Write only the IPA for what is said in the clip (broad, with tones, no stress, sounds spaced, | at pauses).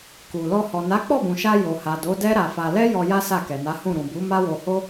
k u˨ l ɔ˧ h ɔ˨ n a˨˦ k͡p ɔ˦˨ b ũ˨ ʃ a˧ j o˨ h a˨ d o˨˦ d ɛ˦ ɾ a˧ f a˧ l ɛ˦ j ɔ˧ j a˦ s a˦˨ k ɛ˨ n a˨˦ h ũ˦˨ ɾ ũ˨ b u˨˦ m a˦ w o˧ h o˦